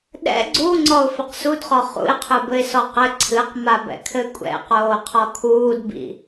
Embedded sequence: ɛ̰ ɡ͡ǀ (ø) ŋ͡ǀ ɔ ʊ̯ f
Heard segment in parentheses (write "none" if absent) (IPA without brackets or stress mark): u